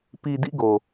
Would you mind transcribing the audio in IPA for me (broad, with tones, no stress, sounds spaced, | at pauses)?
p i˨ d ḭ˦˨ ɡ o˨